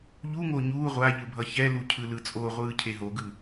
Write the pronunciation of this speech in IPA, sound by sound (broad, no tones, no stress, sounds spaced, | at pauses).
ʎ u ŋ o ɲ uː ʁʷ a ʎ ɯ bʱ ʌ ç ɛ l u cʰ ɯ l ɯ t͡sʼ o ʁʷ ɯː cʰ e ɦ o ɡ ɯ